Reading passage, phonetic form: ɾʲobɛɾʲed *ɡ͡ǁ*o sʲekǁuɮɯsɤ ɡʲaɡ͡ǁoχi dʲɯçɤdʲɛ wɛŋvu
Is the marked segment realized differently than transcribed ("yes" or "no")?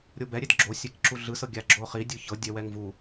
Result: no